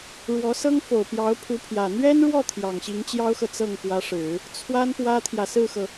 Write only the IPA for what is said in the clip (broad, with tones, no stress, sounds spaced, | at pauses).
ɻ w ɔ˧˥ s ɤ˥ ŋ f o˨˩ ʊ̯ p j ɑ˧˥ ʊ̯ pʰ u˧˥ pʰ j ä˨˩ n̪ ɥ ɛ˥ n ɻ w ɔ˥˩ t̪ʰ j ɑ˨˩ ŋ ɕ i˧˥ ŋ t͡ɕ j ɑ˥ ʊ̯ x ɤ˨ t͡s ɤ˥˩ ŋ k w ä˧˥ ʂ ɻ̩˨˩˦ | t͡sʰ w a˥ n p w ä˥ t̪ʰ j ä˨ s ɹ̩˥˩ x ɤ˩